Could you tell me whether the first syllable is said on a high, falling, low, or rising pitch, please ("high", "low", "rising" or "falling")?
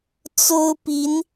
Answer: high